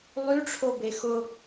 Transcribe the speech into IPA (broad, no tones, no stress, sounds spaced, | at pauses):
lˠ y ʈ͡ʂʰ o b e x ʊ